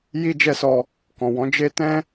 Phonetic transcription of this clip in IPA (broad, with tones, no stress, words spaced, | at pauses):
ji˦d͡ʒɛ˦sɔ˧ | kɔ̃˨wɔ̃˨˦ d͡ʒe˦ tɛ̃˦